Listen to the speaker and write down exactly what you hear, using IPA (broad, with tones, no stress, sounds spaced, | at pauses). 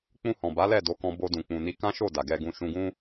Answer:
k͡p ũ˧ h ɔ̃˨ b a˨˦ l ɛ˦˨ d o˨˦ k ɔ̃˧ b o˧ d ũ˨ k͡p ũ˨ n i˧ k ã˦ ʃ o˦˨ d a˨ ɡ ɛ˧ ɡ ũ˧ ʃ ũ˧ ɡ ũ˦